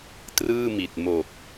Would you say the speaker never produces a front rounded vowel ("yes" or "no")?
yes